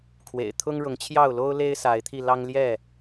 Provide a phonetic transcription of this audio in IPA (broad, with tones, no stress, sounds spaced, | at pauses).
kʰ w ḛ˨˩ ɪ̯ t̪ʰ ʊ˦ ŋ ɻ ʊ˨˦ ŋ t͡ɕʰ j ɑ˥˨ ʊ̯ l o˦ ʊ̯ l e˦ ɪ̯ s a˨˦ ɪ̯ t̪ʰ i˧ l ɑ˦ ŋ l j ɛ˥˨